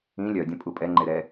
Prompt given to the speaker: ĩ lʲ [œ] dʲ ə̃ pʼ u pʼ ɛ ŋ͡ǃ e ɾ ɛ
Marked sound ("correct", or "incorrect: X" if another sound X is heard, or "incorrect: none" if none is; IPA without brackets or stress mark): correct